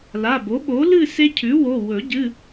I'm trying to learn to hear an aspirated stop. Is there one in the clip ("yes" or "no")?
yes